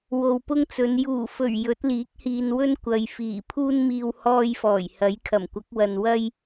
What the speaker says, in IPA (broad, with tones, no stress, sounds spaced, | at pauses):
w o˨ w p ʊ˥ ŋ t͡s ɵ˨˧ n j uː˨˩ f ɵ˨˩ ɥ j ɵ˨˥ t̚ l iː˨˥ k̚ h iː˨ n w ɵ˥ n kʷ ɐ˨ j f iː˨˩ pʰ uː˧ n m iː˨ w h ɔː˧ j f ɔː˨˩ j h ɐ˨˥ j kʰ ɐ˨˩ m kʷ ɐ˨˥ k̚ w ɐ˨ n w ɐ˥ j